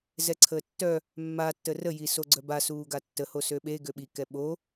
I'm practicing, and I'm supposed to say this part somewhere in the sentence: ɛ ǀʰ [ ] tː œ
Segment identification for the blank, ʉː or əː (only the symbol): əː